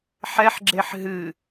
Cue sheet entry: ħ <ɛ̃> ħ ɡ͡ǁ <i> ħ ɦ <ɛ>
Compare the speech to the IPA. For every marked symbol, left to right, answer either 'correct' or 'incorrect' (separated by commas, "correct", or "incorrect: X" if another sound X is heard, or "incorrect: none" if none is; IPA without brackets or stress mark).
incorrect: ɛ, incorrect: e, incorrect: ɨ